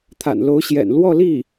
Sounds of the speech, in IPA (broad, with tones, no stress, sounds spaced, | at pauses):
t̪ʰ a̰˨˩ n l o˧˥ ʊ̯ ɕ j ɛ̰˨˩ n l w ɔ˥˧ l i˥˩